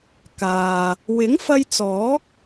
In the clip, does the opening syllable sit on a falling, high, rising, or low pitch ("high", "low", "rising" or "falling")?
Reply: low